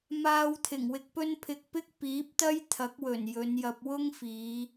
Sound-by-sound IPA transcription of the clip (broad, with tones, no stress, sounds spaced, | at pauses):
m aː˧ w t̪ʰ ɪ˨˩ ŋ w ɪ˧ k̚ p ɵ˥ n pʰ ɪ˧ k̚ p ɪ˥ k̚ p iː˨˥ p̚ t̪ ɐ˥ j t̪ʰ ɐ˨˥ k̚ w ɵ˨˩ n j ɵ˨˧ n j ɐ˧ p̚ w ʊ˥ ŋ f iː˨˧